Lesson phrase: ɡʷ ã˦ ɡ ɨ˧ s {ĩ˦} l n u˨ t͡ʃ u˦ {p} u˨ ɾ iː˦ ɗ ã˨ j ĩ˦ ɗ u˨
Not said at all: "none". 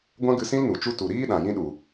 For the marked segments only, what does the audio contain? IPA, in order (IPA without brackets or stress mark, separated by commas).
ĩ˦, t